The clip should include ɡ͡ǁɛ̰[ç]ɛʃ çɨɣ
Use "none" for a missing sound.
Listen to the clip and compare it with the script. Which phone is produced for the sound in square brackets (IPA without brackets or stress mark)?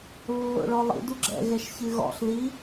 ɣ